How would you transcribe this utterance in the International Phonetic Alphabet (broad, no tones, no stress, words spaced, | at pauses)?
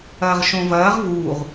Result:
ɐːʁʃõvɐːʁ vuʁ